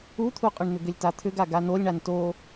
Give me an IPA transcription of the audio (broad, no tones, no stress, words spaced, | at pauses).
ut̪ʰuqʼʏɳn̪ʏ ɡʏlʲtat̪ʰʏɡa ɡanolʲɳan to